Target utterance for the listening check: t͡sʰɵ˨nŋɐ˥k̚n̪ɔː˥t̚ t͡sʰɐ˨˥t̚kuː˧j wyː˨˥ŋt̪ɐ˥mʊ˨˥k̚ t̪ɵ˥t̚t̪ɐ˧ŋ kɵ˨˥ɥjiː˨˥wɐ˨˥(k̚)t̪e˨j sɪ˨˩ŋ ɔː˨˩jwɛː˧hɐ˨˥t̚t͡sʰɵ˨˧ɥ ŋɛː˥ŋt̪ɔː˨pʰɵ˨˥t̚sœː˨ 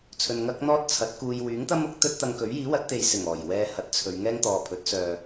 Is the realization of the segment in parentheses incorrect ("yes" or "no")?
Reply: yes